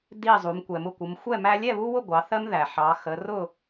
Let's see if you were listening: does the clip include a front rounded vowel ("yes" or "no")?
no